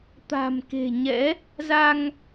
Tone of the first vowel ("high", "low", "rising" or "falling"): low